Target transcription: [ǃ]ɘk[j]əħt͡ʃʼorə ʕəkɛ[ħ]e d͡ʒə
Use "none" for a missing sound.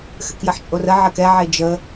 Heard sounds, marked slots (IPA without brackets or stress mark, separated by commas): x, j, ʕ